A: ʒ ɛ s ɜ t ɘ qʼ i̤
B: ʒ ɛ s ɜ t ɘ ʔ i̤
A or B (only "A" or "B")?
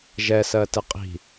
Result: A